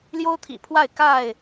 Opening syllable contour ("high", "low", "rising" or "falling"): high